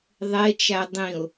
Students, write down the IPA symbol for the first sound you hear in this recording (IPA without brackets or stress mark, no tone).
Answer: ðˤ